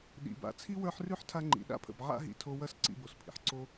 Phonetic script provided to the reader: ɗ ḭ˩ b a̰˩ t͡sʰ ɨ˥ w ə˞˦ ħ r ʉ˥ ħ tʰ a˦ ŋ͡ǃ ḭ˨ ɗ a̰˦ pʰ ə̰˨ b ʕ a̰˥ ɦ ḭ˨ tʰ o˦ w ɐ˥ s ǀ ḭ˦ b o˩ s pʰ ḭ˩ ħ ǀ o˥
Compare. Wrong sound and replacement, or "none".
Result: ɨ˥ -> i˥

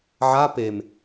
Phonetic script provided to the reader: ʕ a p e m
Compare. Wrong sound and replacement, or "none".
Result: none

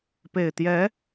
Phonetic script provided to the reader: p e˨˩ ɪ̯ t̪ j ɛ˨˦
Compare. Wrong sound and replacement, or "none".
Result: none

